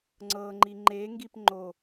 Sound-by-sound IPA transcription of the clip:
ŋ͡ǀɤŋ͡ǃi ŋ͡ǃeŋɡip ŋ͡ǃo

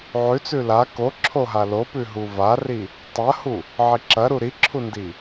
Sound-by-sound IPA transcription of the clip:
ʕʉt͡sʉ la koǁʰoɦa lopʉ ɦuvari | tˤɐhu | ʕiǁɐɾu ɾiǁʰundi

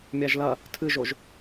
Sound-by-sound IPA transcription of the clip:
mʲaʒlɐ | tʰɨʒoʒ

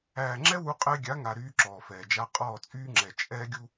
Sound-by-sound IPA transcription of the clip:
æː˨ŋ͡ǁɛ˦ wu˦qʼɛ˦ ɡʲa˨˦ŋa˨ ɾyː˦ǁɔː˨fɛː˨d͡ʒa˦ qʼɔː˦˨t͡sʼyː˦ŋ͡ǁɛ˨ t͡ʃʼɛː˦ɡʲu˦

